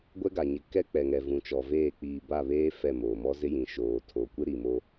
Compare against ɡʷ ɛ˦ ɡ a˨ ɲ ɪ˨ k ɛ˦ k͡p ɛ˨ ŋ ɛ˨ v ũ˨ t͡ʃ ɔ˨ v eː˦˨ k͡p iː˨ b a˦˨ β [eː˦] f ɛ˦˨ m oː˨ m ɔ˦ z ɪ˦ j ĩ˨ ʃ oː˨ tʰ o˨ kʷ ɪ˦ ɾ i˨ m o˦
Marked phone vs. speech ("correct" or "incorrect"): correct